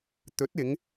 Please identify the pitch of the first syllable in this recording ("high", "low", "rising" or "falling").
rising